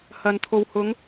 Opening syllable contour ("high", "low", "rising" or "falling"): low